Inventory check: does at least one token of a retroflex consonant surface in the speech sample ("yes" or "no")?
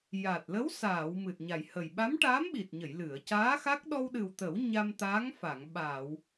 yes